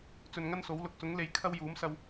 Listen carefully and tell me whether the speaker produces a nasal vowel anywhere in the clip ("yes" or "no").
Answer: no